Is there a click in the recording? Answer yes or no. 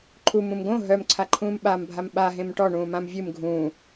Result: yes